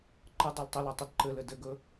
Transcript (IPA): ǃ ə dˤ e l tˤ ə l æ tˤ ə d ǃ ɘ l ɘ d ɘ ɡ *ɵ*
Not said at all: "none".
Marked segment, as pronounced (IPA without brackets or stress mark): ɵ